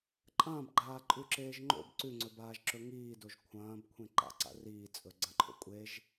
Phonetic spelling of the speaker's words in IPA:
ǃʼ ɐ̃ː b ɡ͡ǃ aː ǃʼ ʉ ǁ eː ʒ ŋ͡ǃ o̰ b ǀ ʉ ŋ͡ǀ ɵ b aː ʒ ǁ ɵ ŋ iː d o ʒ kʷʰ ɐ̃ː b kʷʰ ẽ ǃ a̰ ǀ a̰ r iː t͡sʼ ɵ ɡ͡ǀ ɐ̃ ǃʰ o̰ kʷʼ e ʒ

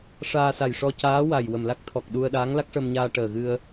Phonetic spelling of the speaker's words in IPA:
ʂ aː˧ s a˨˩ j ʂ ɔ˧ c aː˧˥ w a˨˩ j w ə˨˩ m l a˦˥ k̚ t̪ʰ ɔ˨˩ k̚ ɗ u˧ ə̯ ɗ aː˧˥ ŋ l a˦˥ k̚ ʂ ə˧ m ɲ aː˧ ʈ əː˨˩ ɣ ɨ˧ ə̯

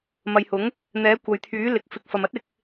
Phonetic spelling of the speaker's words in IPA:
m ɐ˨ j h ʊ˨˥ ŋ | n̪ ɛː˨˥ kʷ ɐ˨ j t̪ʰ yː˨˥ l ɪ˨ k̚ f ɪ˨ k̚ f ɐ˨ m ɐ˥ t̚ ɪ˧ k̚

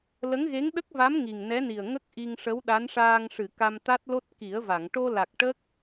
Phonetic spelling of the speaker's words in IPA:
l ə˧˥ ŋ ɣ e˧˥ ŋ ɗ ə˦˥ k̚ v a˧˥ m ŋ i˨˩ ŋ n ɛ˧˥ n i˨˩ ə̯ ŋ ə˦˥ k̚ ʔ i˧ ŋ ʂ ə˧˥ w ɗ a˧˥ n ʂ aː˧ ŋ ʂ ɨ˨˩˨ k a˧ m t̪ a˦˥ t̚ l o˦˥ t̚ k i˨˩˦ ə̯ v a˨˩˨ ŋ ʈ o˧ l a˨˩ k̚ ʈ ə˦˥ k̚

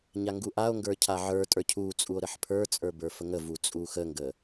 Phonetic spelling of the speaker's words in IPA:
ɲ a ŋ ɡ u ʔ a o̯ ŋ ɡ ə˞ cʰ a ʕ ə˞ tʼ ə˞ cʰ u t͡sʼ u o̯ ɾ ə ħ pʰ ə˞ t͡sʼ ə˞ b ə˞ f ə ŋ ə v u t͡sʼ u x ə ŋ ɡ ə

